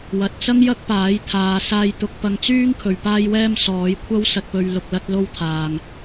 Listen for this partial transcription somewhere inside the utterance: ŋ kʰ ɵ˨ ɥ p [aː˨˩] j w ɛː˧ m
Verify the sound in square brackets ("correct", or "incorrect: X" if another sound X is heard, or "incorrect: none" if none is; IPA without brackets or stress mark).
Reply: incorrect: aː˧